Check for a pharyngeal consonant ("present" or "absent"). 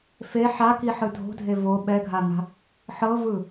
present